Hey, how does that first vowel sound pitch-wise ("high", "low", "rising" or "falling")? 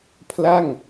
falling